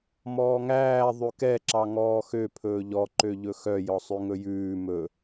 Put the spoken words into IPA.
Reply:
m ɔː ŋ æː ðˤ ʉ k ɛ ǁ ɑ ŋ ɔː x ø pʰ ɵː ʎ ɔ ǃ ø ʎ ɵ x œ j ɔ sˤ ʉ ŋ ɵ j ʉː m ɵ

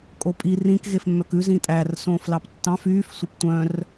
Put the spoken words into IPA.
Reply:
kʼ o pʼ i r ĩ k ɣ e f mː œ k ʉ z ĩ tʼ æ r s õː f l ɑ p tː ɑ̃ f yː f sʷ œ p tʷ œ̃ r

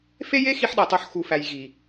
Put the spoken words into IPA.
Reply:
f e˦ j e˦ x i˦ ħ ɗ æ˨ tˤ o˧ ħ x u˨ f æ˨ j ɣ i˨

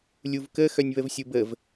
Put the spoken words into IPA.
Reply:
lʲ u v k ə x œ nʲ β ə v sʲ u b ə v

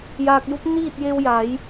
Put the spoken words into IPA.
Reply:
j aː˧ k̚ j u˧˥ p̚ n iː˥˨ t̚ j e˧ w j a˩˧ j

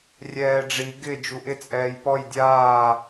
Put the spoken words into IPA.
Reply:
rʲ ɛː ɖ͡ʐ i ɡ ɪ d͡ʒ u ʔ ɪ t͡sʼ ɛː j p ɔ j dʲ aː

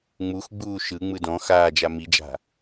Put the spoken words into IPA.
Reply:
ŋ͡m u x ɡ͡b uː ʃ ɯ ŋ͡m ɯ d ɔ̃ x aː d͡ʒ a m i d͡ʒ a̤

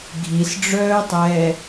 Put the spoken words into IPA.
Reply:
ɡʱ i s ɖ͡ʐ œː tˤ ɛː

